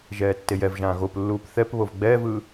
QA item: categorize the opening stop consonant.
plain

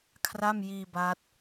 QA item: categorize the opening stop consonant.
aspirated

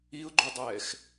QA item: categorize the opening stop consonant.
click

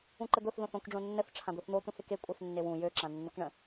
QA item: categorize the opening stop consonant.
click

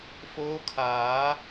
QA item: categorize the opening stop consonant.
aspirated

